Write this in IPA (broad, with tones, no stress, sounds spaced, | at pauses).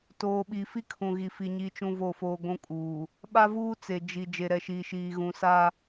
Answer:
t oː˨ ɓ i˨ f i˦ kʰ ũ˨ ɣ i˨ f i˨ ɲ i˦ t͡ʃ ũ˦ v o˦˨ f oː˦ ɡʷ ũ˦ kʼ uː˨ | ɓ a˦ v uː˦ t͡s e˨ d͡ʒ i˨ d͡ʒ e˨ ɾ ɛ˨ ʃ iː˨ ʃ iː˨ ɣ ũ˨ s a˦